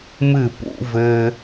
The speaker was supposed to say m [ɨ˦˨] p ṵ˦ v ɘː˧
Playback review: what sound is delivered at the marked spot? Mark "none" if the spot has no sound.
ɨ˦˨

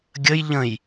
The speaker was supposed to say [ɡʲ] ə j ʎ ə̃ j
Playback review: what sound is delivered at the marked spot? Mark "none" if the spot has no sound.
ɡʲ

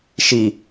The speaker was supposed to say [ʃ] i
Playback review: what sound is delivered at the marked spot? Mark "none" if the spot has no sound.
ʃ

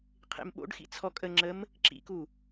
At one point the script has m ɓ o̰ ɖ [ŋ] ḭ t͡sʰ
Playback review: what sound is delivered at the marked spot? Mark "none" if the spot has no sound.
x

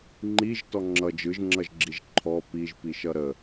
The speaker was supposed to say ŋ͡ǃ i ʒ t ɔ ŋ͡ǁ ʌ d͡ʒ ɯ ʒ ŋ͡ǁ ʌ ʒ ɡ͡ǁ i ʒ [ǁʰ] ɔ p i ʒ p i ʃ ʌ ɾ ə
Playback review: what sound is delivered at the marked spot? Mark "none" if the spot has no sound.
ǃʰ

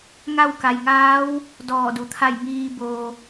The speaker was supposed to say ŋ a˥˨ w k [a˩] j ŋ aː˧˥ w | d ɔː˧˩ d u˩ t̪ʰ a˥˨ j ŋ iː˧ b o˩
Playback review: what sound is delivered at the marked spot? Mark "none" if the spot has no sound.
a˩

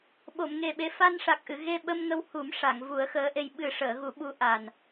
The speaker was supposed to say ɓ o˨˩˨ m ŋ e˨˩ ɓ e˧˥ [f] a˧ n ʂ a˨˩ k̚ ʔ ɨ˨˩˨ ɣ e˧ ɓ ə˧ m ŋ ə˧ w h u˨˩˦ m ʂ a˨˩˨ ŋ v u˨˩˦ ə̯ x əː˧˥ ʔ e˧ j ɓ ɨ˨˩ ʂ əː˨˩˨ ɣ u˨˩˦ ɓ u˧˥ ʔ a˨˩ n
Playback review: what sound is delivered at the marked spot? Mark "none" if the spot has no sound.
f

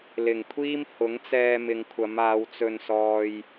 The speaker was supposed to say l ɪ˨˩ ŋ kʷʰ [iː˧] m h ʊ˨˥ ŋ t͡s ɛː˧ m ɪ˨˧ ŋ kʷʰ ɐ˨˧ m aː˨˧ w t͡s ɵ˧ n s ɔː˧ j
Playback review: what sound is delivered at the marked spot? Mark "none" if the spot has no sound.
iː˥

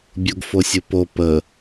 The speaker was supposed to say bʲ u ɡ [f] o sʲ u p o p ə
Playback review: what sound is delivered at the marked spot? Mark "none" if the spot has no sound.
f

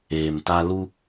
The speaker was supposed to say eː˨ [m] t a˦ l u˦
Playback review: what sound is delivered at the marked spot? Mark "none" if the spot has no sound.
m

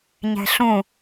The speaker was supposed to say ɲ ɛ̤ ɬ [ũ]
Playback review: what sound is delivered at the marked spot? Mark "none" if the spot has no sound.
ũ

